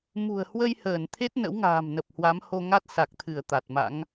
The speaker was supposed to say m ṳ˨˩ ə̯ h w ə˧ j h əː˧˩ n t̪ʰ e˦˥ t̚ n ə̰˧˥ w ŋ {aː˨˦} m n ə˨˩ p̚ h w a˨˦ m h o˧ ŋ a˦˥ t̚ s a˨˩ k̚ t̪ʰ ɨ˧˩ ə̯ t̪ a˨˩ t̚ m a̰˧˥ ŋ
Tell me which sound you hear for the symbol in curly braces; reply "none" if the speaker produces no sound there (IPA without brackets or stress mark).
a̤ː˨˩